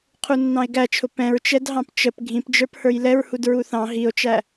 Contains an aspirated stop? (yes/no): yes